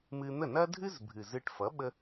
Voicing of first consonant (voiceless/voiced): voiced